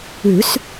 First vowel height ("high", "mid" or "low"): high